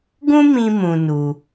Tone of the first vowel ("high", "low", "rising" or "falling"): high